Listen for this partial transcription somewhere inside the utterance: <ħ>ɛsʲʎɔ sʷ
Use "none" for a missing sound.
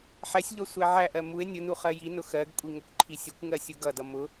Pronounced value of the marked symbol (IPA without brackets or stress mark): ħ